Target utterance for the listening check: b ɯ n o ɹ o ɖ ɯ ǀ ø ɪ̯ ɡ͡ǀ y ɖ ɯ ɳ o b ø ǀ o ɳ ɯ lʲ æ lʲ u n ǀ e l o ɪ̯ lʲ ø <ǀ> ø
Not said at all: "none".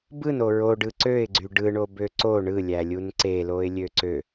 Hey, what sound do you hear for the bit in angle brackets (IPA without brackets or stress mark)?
ǀ